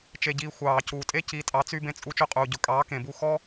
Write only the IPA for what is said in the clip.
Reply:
t͡ʃ e˧ ɟ iː˧ xʷ ɑː˨ c uː˨ tʼ e˦ c i˨˦ tʼ ɑ˨˦ t͡s y˧ b ẽ˧ t͡sʼ u˧ t͡ʃ ɵ˧ qʼ uː˨ ɟ ɵ˨ kʼ ɑː˨˦ k ẽ˨ b u˧ x ɔ˦

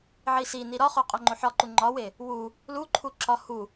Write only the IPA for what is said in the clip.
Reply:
ʕ i s i n i ɾ ɒ χ o qʼ o ŋ͡ǃ o ħ ɒ ǃ u ŋ͡ǃ ɒ w e | w u | l u ǃʰ u ǁ ɒ h u

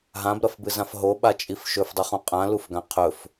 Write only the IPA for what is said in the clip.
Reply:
ɦ ã b ɾ ɐ f b ɨ z ã f ɦ o ɓ a t͡ʃʼ i f ʃ ɵ f dˤ ɨ χ ũ qʼ ã l u f ɡ ã qʰ ɵ f

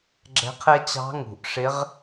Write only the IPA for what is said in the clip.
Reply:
ɡ͡ǁ ɛ̤˧˥ qʰ ɛ˥ t͡ɕ ɑ̤˧˥ ŋ ṳ˩ ʔ ʂ ɪ˧˥ ʁ

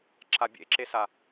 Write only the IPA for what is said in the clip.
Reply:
ǁ a bʲ ḛ ǁ e s a

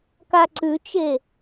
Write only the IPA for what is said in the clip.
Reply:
k a ǀ ʉ t͡ʃ e

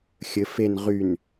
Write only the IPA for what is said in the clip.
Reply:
xʲ ɘ f e n ʁ y n

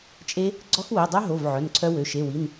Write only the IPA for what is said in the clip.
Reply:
t͡ʃʼ e˦˥ | ɡ͡ǀ ɔ˦˥ x w e˩˧˩ dˤ œ˦˥ ɦ o˩˧˩ v ʕ œ˩˧˩ n ǀʰ œ˦˥ w ø˩˧˩ ʃ e˩˧˩ w i˩˧˩ n

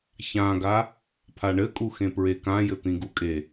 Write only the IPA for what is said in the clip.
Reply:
ç ã ɡ a | pʰ a ɳ ɘ kʼ u x ẽ p ɹ e k ã j ɘ t̪ ĩ ɡ u kʼ e

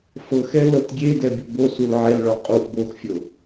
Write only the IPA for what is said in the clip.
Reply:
f ɤ x ɛ l ɤ t ɡʲ e d ɛ bʲ o b o s u l ʕ ɛ l ɭ ɔ qʼ u ʔ b o x fʲ ɤ

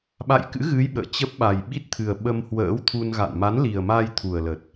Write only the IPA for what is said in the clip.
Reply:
ɓ a̰˧˨ j k ɨ̰˧˥ ɣ ɨ˨˦ j ɓ ə̰ː˧˨ t͡ɕ ə˦˥ p̚ ɓ a˨˩ j ɓ i˦˥ t̚ t̪ʰ ɨ˨˩ ə̯ ɓ ə˧ m h w ə̰ː˧˥ w t̪ʰ u˧ n ɣ a̰˧˨ n m a˨˦ n l i˨˩ ə̯ m a˧ j t̪ʰ u˨˩ ə̯ l ə˨˩ t̚

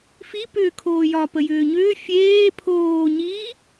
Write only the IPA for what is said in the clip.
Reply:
f i p ʏː kʰ oː j ɒ p ə j ʏː ɲ ʏː fʲ eː pʰ oː ɲ iː

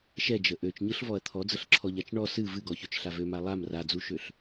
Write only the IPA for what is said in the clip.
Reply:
ʃ ɛ d͡ʒ ə ʔ ø t͡ʃ ɲ ɯ ɬ v ɔ ɐ̯ t̪ʰ ɔ d͡z ə ɬ ǁʰ ɔ ʎ a t͡ʃ ɳ ɔ s ɨ v ɨ ɡ ɔ ç ø t͡ʃ ɬ a v ø m a lˠ a m r a d͡z u ʃ ø ɬ

